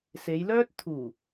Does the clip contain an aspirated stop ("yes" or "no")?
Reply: yes